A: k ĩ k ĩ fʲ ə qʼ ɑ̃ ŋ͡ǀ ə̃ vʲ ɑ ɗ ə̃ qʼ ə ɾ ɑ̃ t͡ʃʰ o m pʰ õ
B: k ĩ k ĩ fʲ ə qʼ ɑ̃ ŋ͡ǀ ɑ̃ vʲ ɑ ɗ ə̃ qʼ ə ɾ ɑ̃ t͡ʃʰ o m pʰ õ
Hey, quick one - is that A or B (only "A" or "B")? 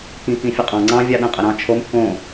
B